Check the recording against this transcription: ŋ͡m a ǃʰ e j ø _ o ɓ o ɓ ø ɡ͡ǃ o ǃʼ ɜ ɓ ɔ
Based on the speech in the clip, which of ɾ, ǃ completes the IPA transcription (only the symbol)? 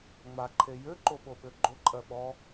ǃ